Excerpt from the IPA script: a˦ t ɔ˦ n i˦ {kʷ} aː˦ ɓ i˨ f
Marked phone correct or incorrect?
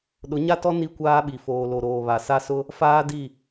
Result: correct